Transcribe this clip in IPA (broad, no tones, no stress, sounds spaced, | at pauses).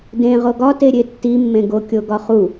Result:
d ẽ ʁ o ɡ ɒ t e ɾʲ e tː i mː ẽ ɡ o kʲ o ɡ ɒ χ u